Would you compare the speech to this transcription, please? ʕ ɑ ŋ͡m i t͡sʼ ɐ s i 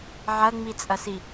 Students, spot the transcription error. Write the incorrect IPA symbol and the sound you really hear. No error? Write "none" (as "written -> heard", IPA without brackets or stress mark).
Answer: ɑ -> ɐ